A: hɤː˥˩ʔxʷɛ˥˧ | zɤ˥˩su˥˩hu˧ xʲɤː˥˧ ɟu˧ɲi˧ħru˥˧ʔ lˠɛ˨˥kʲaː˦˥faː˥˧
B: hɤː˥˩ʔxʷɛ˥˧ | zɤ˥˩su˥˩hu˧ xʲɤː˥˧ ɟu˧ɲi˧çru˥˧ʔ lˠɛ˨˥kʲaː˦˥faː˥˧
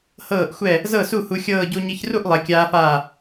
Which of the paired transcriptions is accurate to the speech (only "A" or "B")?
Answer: B